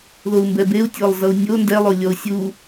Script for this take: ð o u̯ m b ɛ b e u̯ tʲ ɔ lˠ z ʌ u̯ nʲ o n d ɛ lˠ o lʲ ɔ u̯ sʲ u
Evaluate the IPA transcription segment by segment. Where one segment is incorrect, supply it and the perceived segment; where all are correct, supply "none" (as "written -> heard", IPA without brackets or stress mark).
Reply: none